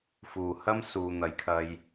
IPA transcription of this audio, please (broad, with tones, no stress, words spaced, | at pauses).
fuː˨˩hɐ˥m suː˨n̪ɐ˨˥jkʰɐ˧j